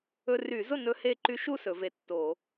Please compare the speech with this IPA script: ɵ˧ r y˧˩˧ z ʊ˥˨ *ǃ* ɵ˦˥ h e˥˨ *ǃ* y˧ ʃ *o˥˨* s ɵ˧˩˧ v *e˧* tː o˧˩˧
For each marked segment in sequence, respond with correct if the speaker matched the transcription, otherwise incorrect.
incorrect: n, correct, incorrect: u˥˨, correct

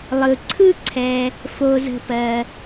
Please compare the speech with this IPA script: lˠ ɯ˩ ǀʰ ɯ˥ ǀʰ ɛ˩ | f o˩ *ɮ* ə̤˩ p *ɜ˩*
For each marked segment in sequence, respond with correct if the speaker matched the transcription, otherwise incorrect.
incorrect: z, correct

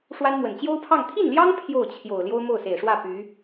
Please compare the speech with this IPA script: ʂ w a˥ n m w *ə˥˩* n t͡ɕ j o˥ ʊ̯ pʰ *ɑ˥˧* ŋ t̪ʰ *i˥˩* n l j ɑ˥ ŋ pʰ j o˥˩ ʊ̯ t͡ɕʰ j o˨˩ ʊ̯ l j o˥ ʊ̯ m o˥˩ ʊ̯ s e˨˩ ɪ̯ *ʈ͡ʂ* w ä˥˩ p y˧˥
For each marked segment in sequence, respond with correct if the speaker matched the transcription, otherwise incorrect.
incorrect: ə˨˩, correct, correct, incorrect: ʂ

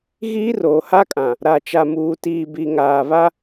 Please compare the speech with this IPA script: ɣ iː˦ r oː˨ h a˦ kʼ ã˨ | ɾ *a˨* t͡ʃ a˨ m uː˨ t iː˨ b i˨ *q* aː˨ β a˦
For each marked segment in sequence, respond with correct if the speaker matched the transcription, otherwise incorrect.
correct, incorrect: ŋ

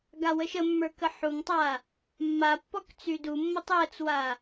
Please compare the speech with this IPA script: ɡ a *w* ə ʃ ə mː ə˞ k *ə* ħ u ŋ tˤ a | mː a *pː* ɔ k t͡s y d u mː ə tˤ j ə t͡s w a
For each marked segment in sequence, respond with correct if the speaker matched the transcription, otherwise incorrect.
correct, correct, correct

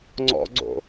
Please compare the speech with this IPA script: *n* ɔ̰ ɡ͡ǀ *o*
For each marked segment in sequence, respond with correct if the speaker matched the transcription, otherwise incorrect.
incorrect: ŋ͡ǀ, incorrect: o̰

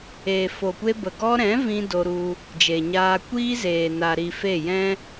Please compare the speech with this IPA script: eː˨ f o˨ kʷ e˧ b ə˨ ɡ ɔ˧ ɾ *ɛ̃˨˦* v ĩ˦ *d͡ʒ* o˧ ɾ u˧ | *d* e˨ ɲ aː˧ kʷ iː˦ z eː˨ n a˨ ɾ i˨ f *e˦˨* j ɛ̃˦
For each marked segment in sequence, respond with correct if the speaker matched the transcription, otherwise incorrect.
correct, incorrect: d, incorrect: d͡ʒ, correct

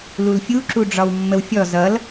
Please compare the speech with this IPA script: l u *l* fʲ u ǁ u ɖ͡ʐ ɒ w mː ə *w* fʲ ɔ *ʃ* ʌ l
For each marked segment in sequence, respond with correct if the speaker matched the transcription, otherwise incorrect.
correct, correct, incorrect: z

